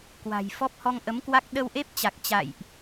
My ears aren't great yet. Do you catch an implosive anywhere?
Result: yes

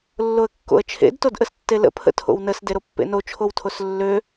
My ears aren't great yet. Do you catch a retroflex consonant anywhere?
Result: no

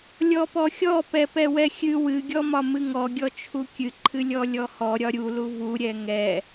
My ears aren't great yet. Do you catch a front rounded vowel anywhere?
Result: no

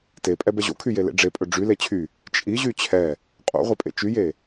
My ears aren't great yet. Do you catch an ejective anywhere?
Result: yes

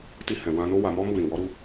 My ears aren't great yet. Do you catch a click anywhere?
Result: no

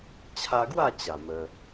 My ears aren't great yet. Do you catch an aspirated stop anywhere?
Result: yes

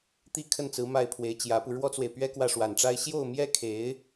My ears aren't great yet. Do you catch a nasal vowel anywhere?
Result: no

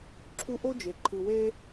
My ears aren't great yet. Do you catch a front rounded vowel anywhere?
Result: no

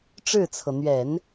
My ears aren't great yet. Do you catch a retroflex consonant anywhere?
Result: yes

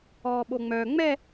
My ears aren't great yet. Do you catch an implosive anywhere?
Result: yes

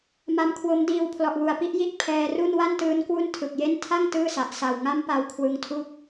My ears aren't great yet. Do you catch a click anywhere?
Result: no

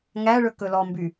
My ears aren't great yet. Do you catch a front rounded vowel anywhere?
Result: yes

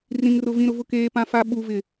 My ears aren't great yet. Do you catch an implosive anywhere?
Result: yes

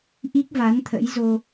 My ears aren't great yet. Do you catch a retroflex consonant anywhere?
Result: no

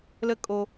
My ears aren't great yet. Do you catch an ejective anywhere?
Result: yes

